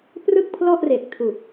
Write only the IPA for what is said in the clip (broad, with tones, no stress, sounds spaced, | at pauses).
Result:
p r ɯ˥˩ k̚ pʰ l ɔ˥˩ ʔ r e˨˩ k̚ tʰ u˨˩ k̚